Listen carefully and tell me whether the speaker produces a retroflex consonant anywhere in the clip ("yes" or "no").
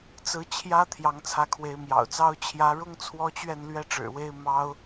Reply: yes